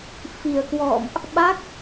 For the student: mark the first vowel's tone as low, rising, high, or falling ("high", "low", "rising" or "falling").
low